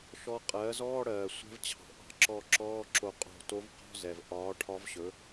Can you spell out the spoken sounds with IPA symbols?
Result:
ʃ ɔ˧˥ qʼ ɜː˩˥ z ɔː˧˥˧ ɽ ɜː˩ sʷ ɛ̤˧˥ v t͡ɕʰ ɑ̤˩ ʔ ɑ̤˧˥ ǁ ɔ˧˩ ǁ ɔː˧˥˧ ǁ o˧˩ qʼ o̤˧˩ t o˧˥ v q ɔ̤˧˥˧ z ɛ˩ v ʔ ɒː˩˥ ʈʰ ɒ˧˥ v ɕ ɵ˩˥

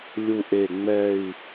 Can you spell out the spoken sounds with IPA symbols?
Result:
lʲ u˧ ʔ e˧˩ ŋ͡m ɛ˥˧ i̯

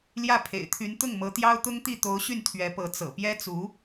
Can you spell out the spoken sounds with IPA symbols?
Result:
l j ä˥˩ pʰ ḛ˨˩ ɪ̯ t̪ʰ y˧˥ n t̪ ʊ˥˩ ŋ m ɤ˧˥ t̪ j ɑ˥ ʊ̯ t̪ ʊ˥ ŋ t̪ i˥˩ t̪ o˧˥ ʊ̯ ɕ y˥˩ n t̪ʰ ɥ ɛ˧˥ p ɤ˧˥ t͡s ɤ̰˨˩ p j ɛ˥ t͡s u˧˥

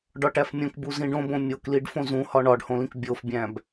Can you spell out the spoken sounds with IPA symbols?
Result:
ɖ ɒ ʈ æ f mʲ õ k b u z ĩ ɖ õ b õ mʲ o k l i ɖ f õ z ũ h ɒ ɳ ɒ ɖ h õ l ĩ k bʲ o f bʲ æ̃ b

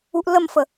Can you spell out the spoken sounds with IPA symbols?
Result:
u ʔ l ə m f ə

